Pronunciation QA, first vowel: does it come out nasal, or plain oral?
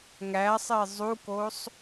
oral